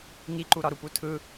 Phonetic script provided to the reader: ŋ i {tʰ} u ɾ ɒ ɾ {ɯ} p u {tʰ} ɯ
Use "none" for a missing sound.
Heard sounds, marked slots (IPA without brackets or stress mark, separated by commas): ǃ, u, tʰ